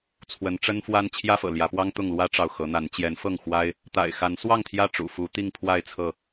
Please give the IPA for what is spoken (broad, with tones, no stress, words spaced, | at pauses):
t͡sʰwə˨˦nʈ͡ʂə˦nfwa˦n t͡ɕʰjä˦fɤ̰˨˩ljä˨˦pwɑ˦ŋ t̪ʊ˥˨ŋlwä˦ʈ͡ʂɑ˨ʊ̯ xɤ˨˦n̪a˨˦n t͡ɕjɛ˨˦nfɤ˥˨ŋ xwa˦ɪ̯ | t̪a̰˨˩ɪ̯xa˨˦nswɑ˥˨ŋ t̪ʰjä˥˨ʈ͡ʂṵ˨˩ fu˨˦t̪i˥˨ŋ pʰwa˥˨ɪ̯t͡sʰɤ˥˨